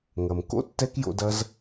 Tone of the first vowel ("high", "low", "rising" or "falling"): low